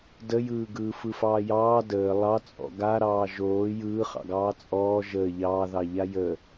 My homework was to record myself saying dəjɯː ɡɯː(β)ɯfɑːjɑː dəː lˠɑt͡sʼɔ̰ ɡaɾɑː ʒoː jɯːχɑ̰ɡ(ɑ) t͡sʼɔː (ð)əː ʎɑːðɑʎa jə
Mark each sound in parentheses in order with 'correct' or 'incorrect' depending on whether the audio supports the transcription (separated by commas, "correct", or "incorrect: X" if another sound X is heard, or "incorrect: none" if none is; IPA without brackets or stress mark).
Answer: incorrect: f, incorrect: ɑː, incorrect: ʒ